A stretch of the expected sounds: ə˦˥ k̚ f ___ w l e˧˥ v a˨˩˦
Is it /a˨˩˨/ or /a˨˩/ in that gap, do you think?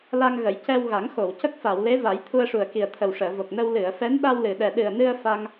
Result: a˨˩˨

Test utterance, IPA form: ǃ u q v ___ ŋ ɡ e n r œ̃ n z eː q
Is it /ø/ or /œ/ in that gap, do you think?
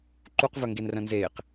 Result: œ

